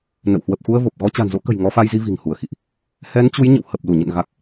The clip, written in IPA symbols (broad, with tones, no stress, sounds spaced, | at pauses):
n ə̰˧˨ w h w ə˨˩ p̚ x u˧ ə̯ v o˨˩ p̚ ɣ ɔ˧ t͡ɕ a̤˨˩ n z o̰˧˥ k ə̤˨˩ j ŋ ɔ˨˦ f a˧ j z i˧ v i̤˨˩ ŋ h u˧˩ ə̯ x ḭ˧˨ ʔ | h ɛ˨˦ n t͡ɕ u˨˦ j ɲ ə̰˧˨ w h ə˨˩ p̚ l u˧˩ ɲ ə̰˧˨ n ɣ a˨˩ k̚